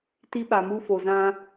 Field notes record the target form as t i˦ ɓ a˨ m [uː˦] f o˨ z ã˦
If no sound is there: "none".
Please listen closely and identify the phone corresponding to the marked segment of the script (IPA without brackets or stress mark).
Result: u˦